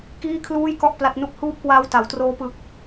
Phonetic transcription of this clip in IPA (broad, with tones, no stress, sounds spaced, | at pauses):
k iː˥˩ kʰ l uː˥˩ j k ɔ˥˩ ʔ p l a˦˥ t̚ n u˥˩ k̚ h uː˦˥ p̚ k w aː˦˥ w t a˩˦ w t r oː˦˥ p ɯ˦˥ k̚